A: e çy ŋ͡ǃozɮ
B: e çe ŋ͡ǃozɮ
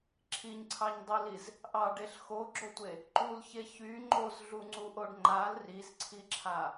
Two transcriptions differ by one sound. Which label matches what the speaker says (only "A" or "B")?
A